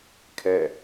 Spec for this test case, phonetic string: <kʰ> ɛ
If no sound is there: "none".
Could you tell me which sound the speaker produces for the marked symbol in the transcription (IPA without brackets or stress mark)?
kʰ